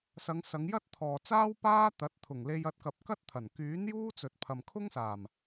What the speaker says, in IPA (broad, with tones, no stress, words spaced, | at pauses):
sɐ˨˧ŋ sɐ˨˧ŋjɐ˥t̚t̪ʰɔː˨t͡saː˥w paː˥t̪ɐ˨˥t̚ t̪ʰʊ˨˩ŋle˧j ɐ˧t̚kɐ˨p̚ kɐ˥t̚t̪ʰɐ˨˩n kyː˨˥n juː˥t͡sɵ˨t̚ pʰɐ˨mkʰʊ˥ŋsaː˨˩m